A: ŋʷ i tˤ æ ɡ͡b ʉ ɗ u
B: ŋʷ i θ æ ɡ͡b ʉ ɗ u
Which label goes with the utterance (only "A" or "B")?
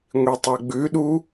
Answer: A